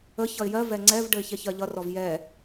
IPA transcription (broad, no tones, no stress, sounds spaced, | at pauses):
ə ç ʌ ɪ̯ j ɜ v ɛ ŋ͡ǀ ɛ v ɖ ə ɪ̯ ç ɛ ç ɜ ʎ ʌ r ɔ v j ɛ